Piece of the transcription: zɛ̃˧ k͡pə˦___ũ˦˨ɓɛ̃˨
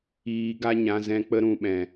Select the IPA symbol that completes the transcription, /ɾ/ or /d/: ɾ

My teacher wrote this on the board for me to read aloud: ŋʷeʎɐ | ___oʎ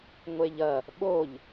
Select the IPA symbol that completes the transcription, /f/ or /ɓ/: ɓ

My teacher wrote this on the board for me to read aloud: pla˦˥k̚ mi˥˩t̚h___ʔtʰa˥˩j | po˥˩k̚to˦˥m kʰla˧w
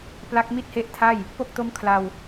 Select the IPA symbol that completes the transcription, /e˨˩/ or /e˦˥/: e˦˥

